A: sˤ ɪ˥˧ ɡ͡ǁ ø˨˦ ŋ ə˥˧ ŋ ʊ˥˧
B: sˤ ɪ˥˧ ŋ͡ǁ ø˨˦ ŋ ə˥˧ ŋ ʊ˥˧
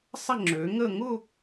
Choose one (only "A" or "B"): B